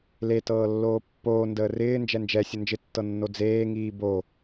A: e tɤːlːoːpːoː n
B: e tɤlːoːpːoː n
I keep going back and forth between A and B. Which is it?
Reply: A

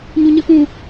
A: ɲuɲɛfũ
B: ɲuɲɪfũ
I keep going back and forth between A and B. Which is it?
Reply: B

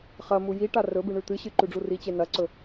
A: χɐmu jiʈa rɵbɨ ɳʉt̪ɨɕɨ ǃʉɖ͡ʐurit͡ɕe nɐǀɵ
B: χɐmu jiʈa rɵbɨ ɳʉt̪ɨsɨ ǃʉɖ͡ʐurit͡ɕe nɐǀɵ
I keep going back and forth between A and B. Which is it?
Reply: A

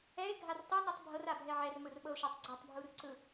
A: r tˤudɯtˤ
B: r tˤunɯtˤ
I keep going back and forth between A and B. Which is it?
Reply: B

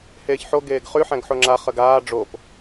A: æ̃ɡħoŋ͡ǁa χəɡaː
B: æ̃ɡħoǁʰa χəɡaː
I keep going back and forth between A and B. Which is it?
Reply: A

